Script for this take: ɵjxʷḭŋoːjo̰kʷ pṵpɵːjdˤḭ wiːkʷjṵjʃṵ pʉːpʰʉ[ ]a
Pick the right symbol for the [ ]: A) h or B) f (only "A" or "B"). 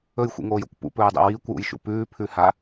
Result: A